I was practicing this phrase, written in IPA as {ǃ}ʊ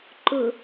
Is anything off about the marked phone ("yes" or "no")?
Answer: no